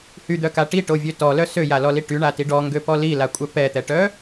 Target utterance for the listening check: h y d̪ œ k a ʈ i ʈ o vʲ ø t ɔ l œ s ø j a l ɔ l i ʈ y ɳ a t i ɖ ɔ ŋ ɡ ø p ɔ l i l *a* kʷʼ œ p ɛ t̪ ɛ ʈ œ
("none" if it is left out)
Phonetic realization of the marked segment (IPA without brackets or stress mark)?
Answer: a